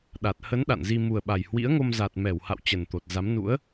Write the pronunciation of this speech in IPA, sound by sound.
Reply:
ɗa˨˩t̚ hə˨˦n ɗa̰˧˨nzi˧ mu˨˩ə̯ɓa˨˩jhwḭ˧˥ə̯ŋo˧m za˨˩t̚mɛ˧˩wha̰˧˨w t͡ɕə˨˩nt̪o˨˩t̚za˨˦mnṵ˧˥ə̯

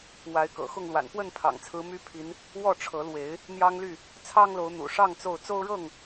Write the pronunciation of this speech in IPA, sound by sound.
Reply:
wa˨˦ɪ̯kɤ̰˨˩xʊ˥˨ŋlwa̰˨˩n pwə˥˨npʰɑ̰˨˩ŋ t͡sʰɹ̩˨˦my˦pʰi˨˦n | wɔ˥˨ʈ͡ʂʰɤ˨˦lwe˨˦ɪ̯ | n̪jɑ˦ŋly˥˨ | t͡sʰɑ˦ŋlo˨˦ʊ̯n̪ṵ˨˩ʂɑ˥˨ŋ t͡so˥˨ʊ̯ t͡so˦ʊ̯ɻɤ˥˨ŋ

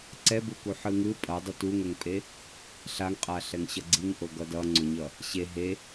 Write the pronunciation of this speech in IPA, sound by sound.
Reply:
ǀɛbuku ħɯŋɯ pʼʌ dˤutuŋɛŋpʼe | ɬaŋqʼaɬɛŋ ɕʌɡ͡ǀiŋʔo ɡʌdʌŋ͡ǀoɲʌ | ɕe ɦe

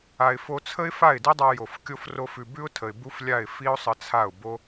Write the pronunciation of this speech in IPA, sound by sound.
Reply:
a˨ɪ̯fo˧t͡sʰə˦ɪ̯ fa˦˨ɪ̯di˦dˤa˧ jo˨f kʲo˦fro˦fʉ˧ bʉ˦ʊ̯tʰə˨ɪ̯ bu˦flʲa˦˨ɪ̯ fi˦ʊ̯sˤə˧t͡sʰa˦˨ʊ̯ bo˦

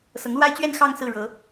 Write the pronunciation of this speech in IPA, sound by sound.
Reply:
sɤ˧˥ŋlwa˥ɪ̯ t͡ɕɥɛ˥˧n xɑ˥˧ŋ sɹ̩˥˩ɻɤ˧˥

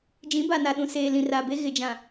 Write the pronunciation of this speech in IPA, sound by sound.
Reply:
d͡ʒĩ˨˦ ba˨na˨ɗũ˨ seː˨ lĩ˨raː˨be˦ ɣɪ˨d͡ʒã˨

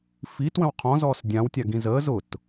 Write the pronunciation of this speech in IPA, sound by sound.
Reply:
fitwə̃w qʰɔ̃zɔːs dʲãwtʲaɡĩ zəːz ʊt

